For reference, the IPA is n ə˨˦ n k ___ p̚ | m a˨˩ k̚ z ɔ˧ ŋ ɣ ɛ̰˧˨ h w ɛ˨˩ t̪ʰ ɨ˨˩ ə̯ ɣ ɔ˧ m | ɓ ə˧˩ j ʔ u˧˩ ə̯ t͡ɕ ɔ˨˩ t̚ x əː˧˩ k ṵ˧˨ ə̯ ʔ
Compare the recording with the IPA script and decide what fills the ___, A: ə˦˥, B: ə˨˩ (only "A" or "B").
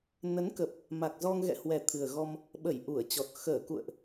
B